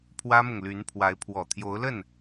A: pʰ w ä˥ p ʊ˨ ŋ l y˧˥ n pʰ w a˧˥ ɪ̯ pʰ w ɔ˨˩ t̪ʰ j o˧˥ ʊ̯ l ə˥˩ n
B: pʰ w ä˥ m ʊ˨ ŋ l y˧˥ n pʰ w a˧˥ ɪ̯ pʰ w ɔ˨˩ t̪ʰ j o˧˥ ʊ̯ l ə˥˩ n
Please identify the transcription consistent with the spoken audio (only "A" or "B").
B